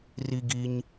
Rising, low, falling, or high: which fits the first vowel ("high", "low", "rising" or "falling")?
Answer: high